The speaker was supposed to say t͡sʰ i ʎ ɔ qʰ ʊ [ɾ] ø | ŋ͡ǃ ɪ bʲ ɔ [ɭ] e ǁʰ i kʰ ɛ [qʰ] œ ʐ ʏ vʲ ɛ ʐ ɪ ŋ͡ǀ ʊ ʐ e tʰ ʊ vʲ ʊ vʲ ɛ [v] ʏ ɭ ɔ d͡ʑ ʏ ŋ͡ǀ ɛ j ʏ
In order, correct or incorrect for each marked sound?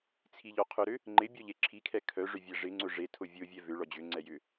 correct, incorrect, incorrect, correct

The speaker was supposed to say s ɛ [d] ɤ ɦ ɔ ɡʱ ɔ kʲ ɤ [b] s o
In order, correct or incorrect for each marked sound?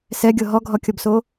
incorrect, correct

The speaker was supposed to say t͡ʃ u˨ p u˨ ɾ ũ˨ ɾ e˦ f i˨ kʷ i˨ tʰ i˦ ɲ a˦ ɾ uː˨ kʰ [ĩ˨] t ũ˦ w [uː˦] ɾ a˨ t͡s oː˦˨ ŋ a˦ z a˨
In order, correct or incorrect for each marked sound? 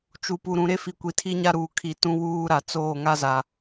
incorrect, correct

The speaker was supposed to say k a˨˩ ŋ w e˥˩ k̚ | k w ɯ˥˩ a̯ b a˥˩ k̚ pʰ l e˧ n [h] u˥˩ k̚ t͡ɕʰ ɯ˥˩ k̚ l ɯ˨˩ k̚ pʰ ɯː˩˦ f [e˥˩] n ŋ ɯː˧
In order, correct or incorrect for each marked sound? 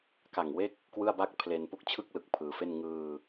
incorrect, correct

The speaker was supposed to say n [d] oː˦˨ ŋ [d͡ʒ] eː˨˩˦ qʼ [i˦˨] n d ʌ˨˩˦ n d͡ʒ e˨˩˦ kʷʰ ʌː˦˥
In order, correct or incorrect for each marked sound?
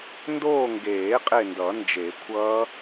correct, incorrect, incorrect

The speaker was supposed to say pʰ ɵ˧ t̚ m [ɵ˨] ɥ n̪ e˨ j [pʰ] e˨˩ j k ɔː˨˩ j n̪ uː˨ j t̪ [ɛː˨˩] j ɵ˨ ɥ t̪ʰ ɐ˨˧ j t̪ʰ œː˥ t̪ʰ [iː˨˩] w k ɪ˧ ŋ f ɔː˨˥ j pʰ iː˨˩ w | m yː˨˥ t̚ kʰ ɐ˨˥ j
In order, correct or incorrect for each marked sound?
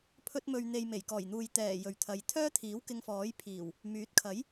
correct, incorrect, correct, incorrect

